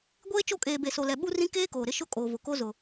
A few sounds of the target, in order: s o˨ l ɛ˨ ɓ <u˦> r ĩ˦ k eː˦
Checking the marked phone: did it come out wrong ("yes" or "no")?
no